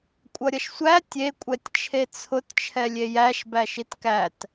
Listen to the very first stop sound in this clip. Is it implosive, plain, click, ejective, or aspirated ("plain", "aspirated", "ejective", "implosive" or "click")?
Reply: ejective